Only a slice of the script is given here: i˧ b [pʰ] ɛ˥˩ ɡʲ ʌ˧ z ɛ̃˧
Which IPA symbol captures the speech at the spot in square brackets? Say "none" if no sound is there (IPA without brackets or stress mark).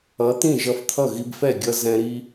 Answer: f